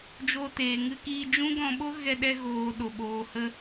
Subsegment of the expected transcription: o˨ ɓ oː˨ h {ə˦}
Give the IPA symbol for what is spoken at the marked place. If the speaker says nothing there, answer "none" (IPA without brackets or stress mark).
ə˧